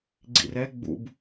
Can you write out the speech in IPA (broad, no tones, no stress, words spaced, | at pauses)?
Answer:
ɡ͡ǀḭrɛ ɡ͡bṵb